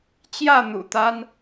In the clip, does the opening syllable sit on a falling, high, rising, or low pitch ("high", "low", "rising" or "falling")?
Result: falling